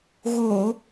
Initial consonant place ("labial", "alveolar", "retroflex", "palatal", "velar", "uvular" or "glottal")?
velar